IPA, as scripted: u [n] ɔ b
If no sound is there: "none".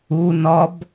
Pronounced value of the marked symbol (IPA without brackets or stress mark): n